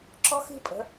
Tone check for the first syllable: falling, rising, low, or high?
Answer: high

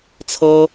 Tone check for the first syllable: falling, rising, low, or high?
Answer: high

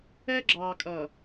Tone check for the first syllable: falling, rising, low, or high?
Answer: high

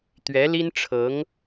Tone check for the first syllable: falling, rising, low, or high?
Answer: rising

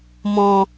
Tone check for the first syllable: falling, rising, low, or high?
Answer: low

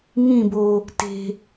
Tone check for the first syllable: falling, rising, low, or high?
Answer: falling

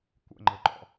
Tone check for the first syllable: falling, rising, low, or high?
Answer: falling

